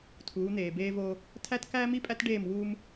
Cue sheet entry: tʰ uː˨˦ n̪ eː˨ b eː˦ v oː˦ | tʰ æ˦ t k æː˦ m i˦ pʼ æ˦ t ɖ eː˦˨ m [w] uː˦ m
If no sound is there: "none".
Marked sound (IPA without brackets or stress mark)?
w